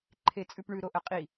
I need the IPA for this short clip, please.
ǃʰ e t͡sʼ ʉ p ɳ ʉ ɾ o ʔ ɐ qʼ i

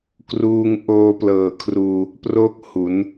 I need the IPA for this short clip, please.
k r uː˧ ŋ ʔ oː˧ p l ɤː˨˩ kʰ r uː˧ | p r o˥˩ k̚ h u˩˦ n

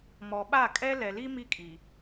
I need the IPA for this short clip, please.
m ɔ˨ ɓ a˦˨ kʼ ɛ˦ l ɛ˨ l i˦ m i˦ kʼ i˨

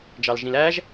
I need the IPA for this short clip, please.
d͡ʒ ɑ l ʒ ĩ l æ ʒ

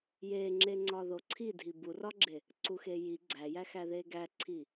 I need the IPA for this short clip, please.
j e ŋ͡ǁ e ŋ͡ǀ ɒ ð o ǀʰ i dʱ i b u r ɒ ɡ͡ǁ e | ǀ u x e j i ɡ͡ǀ æ j æ x æ ð e ɡ æ ǀʰ i

